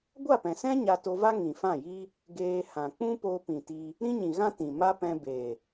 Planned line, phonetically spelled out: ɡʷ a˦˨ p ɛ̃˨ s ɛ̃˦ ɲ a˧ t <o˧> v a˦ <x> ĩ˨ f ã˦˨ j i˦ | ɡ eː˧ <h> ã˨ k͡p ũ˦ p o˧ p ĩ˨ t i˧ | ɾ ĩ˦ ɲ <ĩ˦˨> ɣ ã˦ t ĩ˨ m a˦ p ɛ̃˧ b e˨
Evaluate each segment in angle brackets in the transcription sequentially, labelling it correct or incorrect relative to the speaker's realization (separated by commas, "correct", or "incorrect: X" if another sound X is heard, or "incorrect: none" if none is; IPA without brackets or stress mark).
correct, incorrect: ŋ, correct, incorrect: ĩ˨